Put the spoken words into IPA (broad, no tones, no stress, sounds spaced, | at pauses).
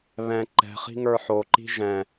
β ɛ̃ ǃ ɛ̤ χ i̤ ŋ ə˞ ħ o ǃ i̤ ʒ ɛ̃